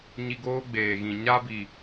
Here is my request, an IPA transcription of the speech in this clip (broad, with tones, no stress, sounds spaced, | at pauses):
ɲ i˧ ɡ oː˦ ɡ͡b eː˨ ɣ ĩ˨ ɲ a˦ b i˨